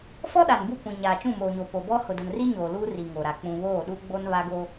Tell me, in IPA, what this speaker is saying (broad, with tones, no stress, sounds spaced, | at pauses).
f ɔ˦ ɗ a˨ n b u˦˨ kʷ ĩ˨ ɲ aː˨ t͡ʃ ũ˦˨ m oː˨ ɲ o˨ p o˨ b ɔ˦ h ʊ˨ d ʊ˨ n r i˦ ɲ oː˨ l uː˦ r i˨ ŋ o˨ ɾ a˨ k͡p ũ˨ β oː˦˨ ɗ u˦ ɡ͡b o˦ n β a˦ ɡ o˦